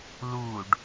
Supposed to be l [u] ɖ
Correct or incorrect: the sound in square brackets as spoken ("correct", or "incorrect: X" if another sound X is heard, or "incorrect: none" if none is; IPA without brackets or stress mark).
correct